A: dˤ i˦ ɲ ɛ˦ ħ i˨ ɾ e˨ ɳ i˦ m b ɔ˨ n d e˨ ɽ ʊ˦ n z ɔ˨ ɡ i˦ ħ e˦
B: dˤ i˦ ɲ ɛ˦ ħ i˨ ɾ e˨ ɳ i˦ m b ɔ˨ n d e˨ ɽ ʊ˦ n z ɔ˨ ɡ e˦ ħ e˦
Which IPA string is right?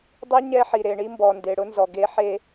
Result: B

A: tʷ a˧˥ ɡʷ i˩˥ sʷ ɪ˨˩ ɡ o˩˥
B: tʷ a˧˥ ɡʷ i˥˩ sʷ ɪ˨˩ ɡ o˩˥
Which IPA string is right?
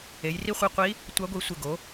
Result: A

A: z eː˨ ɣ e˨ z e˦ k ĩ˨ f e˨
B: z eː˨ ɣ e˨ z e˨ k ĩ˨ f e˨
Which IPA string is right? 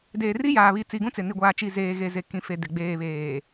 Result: B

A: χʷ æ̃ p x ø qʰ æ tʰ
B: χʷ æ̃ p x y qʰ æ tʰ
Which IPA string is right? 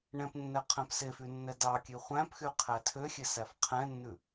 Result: B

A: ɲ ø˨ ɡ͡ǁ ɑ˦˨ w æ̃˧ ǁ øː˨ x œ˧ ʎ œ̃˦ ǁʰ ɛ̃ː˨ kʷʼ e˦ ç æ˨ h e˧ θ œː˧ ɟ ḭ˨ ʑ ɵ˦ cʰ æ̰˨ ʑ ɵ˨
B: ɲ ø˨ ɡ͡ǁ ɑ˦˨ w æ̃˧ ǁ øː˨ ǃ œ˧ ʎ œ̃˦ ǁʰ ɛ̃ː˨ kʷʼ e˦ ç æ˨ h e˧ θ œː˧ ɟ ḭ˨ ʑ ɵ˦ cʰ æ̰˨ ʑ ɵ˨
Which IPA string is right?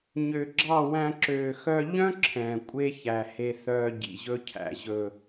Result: A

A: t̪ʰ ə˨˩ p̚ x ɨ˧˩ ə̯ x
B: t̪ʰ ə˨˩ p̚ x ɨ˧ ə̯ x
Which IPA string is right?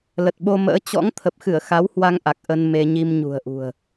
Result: A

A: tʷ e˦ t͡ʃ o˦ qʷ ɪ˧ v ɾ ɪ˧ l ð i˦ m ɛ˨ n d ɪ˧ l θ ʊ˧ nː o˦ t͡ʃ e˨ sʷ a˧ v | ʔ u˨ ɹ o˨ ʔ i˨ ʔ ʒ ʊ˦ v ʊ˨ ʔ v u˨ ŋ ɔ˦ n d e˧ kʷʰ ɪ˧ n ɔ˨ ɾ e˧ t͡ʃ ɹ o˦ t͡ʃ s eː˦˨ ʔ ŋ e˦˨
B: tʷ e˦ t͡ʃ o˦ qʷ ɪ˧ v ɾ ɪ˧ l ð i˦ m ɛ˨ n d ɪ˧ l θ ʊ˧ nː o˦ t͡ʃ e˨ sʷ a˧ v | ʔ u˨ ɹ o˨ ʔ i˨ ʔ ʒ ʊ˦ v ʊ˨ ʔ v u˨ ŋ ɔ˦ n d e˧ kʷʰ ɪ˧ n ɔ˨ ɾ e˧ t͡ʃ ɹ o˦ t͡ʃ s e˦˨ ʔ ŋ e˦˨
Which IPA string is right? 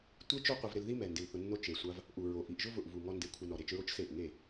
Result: B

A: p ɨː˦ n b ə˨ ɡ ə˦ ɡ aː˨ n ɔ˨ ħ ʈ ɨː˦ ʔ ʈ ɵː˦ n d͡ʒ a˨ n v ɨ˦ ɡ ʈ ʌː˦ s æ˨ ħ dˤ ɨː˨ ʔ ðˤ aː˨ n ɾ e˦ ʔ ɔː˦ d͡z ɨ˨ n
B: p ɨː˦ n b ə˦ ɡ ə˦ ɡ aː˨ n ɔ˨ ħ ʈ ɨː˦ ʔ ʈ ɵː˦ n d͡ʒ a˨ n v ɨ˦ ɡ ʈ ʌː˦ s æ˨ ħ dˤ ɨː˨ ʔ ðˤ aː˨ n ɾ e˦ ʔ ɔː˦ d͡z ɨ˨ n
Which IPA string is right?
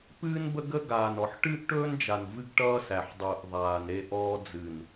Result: B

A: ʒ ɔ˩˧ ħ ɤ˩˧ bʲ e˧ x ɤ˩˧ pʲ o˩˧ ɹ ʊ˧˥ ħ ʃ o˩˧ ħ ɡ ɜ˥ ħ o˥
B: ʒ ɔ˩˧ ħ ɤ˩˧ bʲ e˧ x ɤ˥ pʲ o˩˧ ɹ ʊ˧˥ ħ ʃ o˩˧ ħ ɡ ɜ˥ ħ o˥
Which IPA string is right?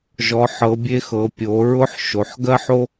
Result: A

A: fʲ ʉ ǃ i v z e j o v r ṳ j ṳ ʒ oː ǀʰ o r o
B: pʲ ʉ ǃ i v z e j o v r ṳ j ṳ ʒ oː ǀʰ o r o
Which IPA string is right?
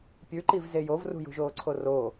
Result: B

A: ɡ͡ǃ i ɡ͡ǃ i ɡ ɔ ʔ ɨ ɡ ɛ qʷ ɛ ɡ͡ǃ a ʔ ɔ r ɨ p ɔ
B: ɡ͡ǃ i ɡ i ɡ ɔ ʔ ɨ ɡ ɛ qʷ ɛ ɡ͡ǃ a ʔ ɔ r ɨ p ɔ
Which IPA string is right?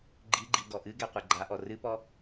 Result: A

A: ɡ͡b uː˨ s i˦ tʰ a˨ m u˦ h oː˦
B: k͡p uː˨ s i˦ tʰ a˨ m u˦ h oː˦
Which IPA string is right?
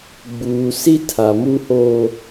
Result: A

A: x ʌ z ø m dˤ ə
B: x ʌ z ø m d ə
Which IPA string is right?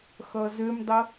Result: A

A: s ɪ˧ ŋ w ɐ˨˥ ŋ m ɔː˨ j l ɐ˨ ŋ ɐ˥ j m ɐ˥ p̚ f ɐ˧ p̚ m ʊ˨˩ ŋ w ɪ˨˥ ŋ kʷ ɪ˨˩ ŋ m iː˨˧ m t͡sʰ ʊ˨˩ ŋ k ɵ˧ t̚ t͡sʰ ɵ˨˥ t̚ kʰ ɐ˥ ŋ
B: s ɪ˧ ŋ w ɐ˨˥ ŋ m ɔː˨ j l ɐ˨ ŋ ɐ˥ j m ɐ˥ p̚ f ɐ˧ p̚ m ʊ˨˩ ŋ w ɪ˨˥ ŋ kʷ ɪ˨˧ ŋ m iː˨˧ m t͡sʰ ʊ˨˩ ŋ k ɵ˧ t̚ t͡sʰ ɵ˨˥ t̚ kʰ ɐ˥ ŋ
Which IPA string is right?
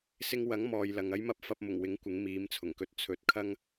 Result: B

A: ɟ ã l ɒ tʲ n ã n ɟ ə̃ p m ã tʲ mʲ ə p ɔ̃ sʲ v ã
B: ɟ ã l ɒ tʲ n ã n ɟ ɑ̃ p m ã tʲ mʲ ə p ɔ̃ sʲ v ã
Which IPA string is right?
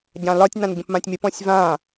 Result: A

